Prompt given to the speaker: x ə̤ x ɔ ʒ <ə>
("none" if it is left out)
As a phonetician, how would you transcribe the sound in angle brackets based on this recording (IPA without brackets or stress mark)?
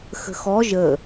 ə